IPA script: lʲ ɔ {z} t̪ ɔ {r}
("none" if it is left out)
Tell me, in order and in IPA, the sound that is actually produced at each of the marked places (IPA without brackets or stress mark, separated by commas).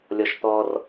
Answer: ʃ, r